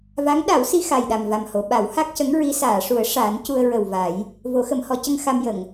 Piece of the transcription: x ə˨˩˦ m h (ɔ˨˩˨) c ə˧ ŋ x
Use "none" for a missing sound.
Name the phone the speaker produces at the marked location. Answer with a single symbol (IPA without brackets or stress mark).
ɔ˨˩˦